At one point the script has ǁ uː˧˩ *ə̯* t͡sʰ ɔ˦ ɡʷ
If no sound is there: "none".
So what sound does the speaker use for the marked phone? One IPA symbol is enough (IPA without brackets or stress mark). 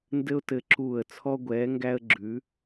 ə̯